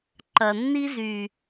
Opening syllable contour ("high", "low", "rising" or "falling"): low